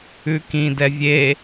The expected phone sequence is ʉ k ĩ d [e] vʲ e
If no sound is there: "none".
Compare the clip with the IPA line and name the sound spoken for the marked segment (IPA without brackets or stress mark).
ɛ